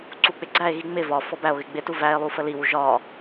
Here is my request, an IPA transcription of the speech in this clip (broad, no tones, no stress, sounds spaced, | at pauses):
ǀ u k͡p ɪ ɡ͡ǀ æ e̯ ɣ i ŋ͡m ɪ v ɒ f ɔ b æ o̯ ɣ ɪ ɡ͡b ɪ t u v æ e̯ lˠ u f ə l i w u ʒ ɒ